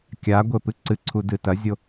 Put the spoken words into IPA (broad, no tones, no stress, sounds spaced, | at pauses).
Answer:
kʲ a ɡʷ e p ɨ ǀ ɨ ǀʰ u d ɨ t ɐ zʲ o